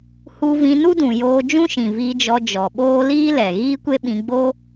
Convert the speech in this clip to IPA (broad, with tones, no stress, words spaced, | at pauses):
hu˧vĩ˧ nu˦dũ˨joː˧ d͡ʒũ˦ʃĩ˨viː˧d͡ʒɔ˧ d͡ʒɔ˨ɓoː˦ liː˦ lɛ˨ ɣiː˦kʷe˦ɓĩ˧ɡ͡bo˦